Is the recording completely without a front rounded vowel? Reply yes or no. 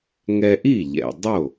yes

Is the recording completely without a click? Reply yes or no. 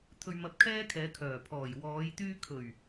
yes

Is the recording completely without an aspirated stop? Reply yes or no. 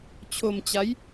no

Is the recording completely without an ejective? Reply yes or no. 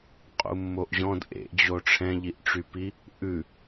no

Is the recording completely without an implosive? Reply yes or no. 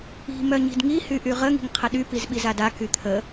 no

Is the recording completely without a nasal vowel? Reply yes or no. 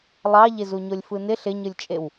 yes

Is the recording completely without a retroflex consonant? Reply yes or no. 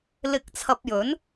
yes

